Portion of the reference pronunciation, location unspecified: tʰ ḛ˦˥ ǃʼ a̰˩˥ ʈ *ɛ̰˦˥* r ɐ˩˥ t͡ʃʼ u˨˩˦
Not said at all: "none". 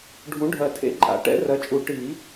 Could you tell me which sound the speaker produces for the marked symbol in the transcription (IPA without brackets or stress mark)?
ɛ̰˦˥